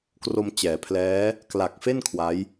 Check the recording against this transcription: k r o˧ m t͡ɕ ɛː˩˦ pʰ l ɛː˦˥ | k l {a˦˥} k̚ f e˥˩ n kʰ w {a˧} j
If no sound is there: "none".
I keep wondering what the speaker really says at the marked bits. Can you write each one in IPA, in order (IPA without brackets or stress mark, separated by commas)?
a˨˩, a˦˥